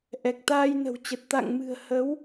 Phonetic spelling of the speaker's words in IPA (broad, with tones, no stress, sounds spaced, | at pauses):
ʔ ɛ˨˩ k̚ t̪ aː˧ j n ə̤˨˩ w t͡ɕ ə˨˩ t̚ t̪ a̰˧˨ ŋ m ɨ̤˨˩ ə̯ h ə˨˦ w